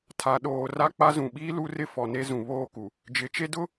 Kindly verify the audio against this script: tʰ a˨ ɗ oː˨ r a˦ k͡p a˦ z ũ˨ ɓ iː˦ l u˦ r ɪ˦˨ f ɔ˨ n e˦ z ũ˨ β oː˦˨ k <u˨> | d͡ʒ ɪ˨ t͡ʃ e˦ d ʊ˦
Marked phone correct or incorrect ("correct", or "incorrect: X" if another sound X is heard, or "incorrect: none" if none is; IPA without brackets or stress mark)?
correct